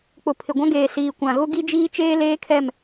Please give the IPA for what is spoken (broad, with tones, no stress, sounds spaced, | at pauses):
k͡p ʊ˨ pʰ ɪ˨ ɡʷ ã˦ ɡ eː˨ s iː˨ kʷ ã˨ ɣ ʊ˦ ɡ i˦ d͡ʒ iː˦ t͡ʃ eː˦ l eː˦ kʰ ɛ˦˨ m